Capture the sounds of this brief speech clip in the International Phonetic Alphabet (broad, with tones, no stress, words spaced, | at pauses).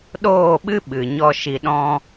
ɗoː˦˨ɓɨ˦ ɓɨ˨ɲɔ˦ ʃi˧ɗɔ̃˦